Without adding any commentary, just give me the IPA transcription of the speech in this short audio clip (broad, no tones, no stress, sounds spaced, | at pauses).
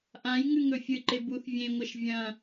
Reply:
ʔ ã j ŋ ʉ ŋ ɵ fʲ ɨ ǃ e b u θ vʲ ẽ ŋʷ ɐ ʃ vʲ ɐ̃